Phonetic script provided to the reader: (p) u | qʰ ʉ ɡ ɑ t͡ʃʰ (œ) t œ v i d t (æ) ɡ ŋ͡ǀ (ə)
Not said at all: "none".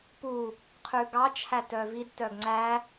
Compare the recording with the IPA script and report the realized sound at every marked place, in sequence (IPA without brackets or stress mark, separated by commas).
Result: p, æ, œ, æ